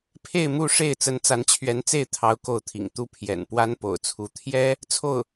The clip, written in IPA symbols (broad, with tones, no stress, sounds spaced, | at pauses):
pʰ e˥˧ ɪ̯ m u˥˧ ʂ e˥˩ ɪ̯ t͡s ə˧˥ n t͡s a˧˥ n t͡ɕʰ ɥ ɛ˧˥ n t͡s e˥˩ ɪ̯ t̪ʰ ɑ˥ ʊ̯ k o˥˩ ʊ̯ t̪ʰ ḭ˨˩ ŋ t̪ u˥˩ pʰ j ɛ̰˨˩ n p w a˥ n p o̰˨˩ ʊ̯ t͡sʰ u˧˥ t̪ʰ j ɛ˥ | t͡sʰ o˥˩ ʊ̯